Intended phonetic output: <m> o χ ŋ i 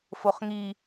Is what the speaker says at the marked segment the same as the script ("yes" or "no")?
no